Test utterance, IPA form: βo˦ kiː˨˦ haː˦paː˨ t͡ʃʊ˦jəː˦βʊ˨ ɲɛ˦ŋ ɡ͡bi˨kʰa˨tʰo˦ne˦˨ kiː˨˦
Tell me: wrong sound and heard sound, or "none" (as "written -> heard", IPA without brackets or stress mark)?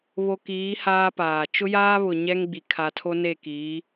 əː˦ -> aː˦